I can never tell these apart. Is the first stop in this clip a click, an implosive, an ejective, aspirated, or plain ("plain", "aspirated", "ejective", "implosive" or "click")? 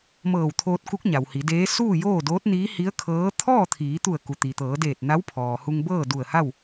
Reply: aspirated